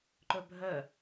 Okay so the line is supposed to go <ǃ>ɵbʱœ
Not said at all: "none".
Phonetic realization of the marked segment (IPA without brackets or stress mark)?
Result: ǃ